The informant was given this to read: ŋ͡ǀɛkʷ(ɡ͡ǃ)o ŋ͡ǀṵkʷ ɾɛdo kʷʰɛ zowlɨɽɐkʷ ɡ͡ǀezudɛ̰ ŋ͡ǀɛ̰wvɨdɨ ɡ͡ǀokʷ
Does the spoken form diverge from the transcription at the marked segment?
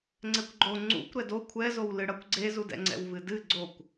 no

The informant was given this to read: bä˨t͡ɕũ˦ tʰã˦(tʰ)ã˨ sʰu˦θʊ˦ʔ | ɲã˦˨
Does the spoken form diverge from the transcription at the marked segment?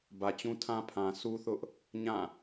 yes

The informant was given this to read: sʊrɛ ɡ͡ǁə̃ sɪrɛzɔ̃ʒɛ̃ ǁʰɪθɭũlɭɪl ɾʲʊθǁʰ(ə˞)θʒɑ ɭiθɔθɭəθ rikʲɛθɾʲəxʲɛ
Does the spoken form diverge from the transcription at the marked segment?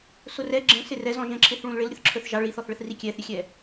no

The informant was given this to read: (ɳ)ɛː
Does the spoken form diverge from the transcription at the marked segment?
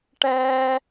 yes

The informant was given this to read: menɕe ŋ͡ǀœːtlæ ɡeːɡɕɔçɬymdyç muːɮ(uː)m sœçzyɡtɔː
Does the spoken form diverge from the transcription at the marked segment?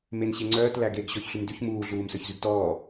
no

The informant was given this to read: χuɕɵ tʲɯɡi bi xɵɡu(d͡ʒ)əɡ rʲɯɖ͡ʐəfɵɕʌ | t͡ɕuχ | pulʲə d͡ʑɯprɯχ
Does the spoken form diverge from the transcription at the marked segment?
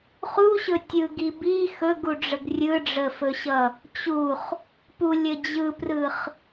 yes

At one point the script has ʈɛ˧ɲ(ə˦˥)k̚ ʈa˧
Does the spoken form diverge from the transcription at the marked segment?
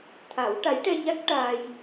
yes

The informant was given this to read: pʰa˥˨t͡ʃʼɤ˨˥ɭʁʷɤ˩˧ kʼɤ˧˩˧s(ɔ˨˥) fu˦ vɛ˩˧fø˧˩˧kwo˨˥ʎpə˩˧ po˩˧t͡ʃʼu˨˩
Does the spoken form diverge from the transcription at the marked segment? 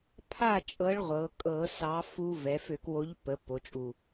yes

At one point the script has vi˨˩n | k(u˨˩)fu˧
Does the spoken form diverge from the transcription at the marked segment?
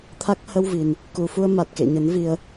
no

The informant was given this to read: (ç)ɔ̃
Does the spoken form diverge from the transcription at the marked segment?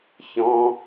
no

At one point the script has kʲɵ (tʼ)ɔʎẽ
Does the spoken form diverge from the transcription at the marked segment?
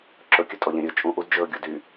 no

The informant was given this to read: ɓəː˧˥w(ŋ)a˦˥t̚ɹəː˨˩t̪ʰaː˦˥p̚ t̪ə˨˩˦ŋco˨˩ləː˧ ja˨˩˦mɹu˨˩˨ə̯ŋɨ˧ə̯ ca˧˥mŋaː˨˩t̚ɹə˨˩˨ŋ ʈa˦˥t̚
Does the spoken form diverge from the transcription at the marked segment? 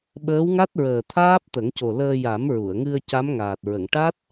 no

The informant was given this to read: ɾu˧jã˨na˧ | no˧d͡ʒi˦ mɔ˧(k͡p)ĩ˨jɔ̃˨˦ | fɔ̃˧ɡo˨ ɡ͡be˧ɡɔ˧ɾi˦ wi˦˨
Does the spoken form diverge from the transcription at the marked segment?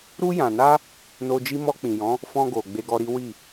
no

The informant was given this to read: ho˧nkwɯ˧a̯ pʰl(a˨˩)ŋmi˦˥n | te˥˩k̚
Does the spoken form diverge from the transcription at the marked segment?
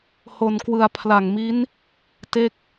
no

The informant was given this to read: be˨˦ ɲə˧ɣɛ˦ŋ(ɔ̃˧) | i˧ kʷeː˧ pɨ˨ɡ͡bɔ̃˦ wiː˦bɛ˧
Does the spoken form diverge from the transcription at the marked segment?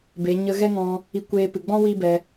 no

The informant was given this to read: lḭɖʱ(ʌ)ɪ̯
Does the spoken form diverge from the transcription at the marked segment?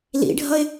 no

